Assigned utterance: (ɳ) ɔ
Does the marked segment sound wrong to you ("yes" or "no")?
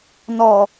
yes